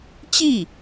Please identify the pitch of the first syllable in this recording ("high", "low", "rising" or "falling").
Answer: falling